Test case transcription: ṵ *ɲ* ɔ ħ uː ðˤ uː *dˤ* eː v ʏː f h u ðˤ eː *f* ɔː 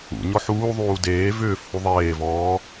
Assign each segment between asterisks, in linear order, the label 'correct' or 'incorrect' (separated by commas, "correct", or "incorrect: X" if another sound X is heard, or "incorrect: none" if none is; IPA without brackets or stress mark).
correct, incorrect: d, incorrect: v